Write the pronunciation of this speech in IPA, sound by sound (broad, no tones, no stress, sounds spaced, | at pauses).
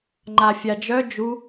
ŋ͡ǃ a fʲ a d͡ʒ œ d͡ʒ u